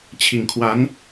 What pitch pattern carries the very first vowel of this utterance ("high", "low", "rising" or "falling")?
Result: low